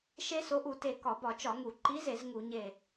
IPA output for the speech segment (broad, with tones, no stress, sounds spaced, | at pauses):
ʃ e˦˥ s o˨˥ ʔ u˧˩˧ t e˧˩ k ɒ˧˩˧ b ɒ˧˩˧ t͡ʃ ɒ˧˩˧ ŋ u˧˩˧ ǃ i˨˥ z e˧˩˧ z ŋ u˧˩˧ ɲ e˧˩